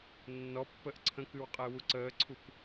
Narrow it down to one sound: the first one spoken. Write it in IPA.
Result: nː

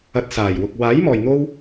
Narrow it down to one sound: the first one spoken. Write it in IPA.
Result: ɐ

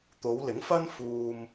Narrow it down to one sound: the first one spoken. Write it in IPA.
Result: t̪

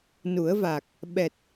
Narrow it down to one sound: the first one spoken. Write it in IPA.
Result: n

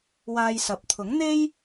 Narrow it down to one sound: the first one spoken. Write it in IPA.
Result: w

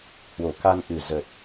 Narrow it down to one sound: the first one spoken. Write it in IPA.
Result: h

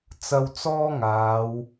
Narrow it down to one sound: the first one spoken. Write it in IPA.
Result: t͡s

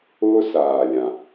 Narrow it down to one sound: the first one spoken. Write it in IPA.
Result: ʊː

